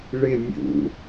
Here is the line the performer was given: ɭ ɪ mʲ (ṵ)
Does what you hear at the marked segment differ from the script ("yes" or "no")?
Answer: no